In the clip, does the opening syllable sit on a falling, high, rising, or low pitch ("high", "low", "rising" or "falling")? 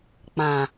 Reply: low